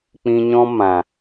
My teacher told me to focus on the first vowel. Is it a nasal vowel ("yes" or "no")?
yes